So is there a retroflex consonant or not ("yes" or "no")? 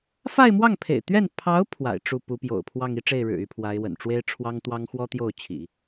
yes